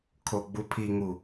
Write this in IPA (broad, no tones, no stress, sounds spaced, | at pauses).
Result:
kʰ o ɡ͡b u pʰ i ŋ u